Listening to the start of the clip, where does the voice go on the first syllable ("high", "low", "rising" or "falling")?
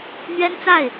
high